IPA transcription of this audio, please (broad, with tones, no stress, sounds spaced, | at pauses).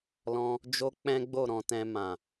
l ɔ̃˧ | d͡ʒ o˦ k͡p ɛ̃˦ ɡ͡b o˦˨ ɾ ɔ̃˧ t ɛ̃˧ m ã˨